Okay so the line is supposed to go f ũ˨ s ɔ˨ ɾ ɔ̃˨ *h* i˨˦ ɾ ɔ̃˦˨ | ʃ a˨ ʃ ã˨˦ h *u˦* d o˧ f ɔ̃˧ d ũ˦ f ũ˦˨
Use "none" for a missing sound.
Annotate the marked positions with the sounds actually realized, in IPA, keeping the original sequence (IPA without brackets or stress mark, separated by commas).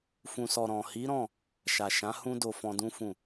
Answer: h, ũ˦